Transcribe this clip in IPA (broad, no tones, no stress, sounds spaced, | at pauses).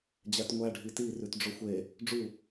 d͡ʑ æ t ŋʷ æ ɖʱ i t i r ʉ t ɖ͡ʐ o xʷ e | ɖ͡ʐ u